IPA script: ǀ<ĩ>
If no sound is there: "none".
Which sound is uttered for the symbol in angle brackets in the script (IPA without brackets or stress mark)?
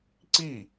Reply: i